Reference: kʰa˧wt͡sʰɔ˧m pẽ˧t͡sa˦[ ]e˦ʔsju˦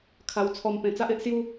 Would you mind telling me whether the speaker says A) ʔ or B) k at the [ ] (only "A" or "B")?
A